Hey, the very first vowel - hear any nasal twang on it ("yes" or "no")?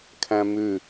yes